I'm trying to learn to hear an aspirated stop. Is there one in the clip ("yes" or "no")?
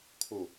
yes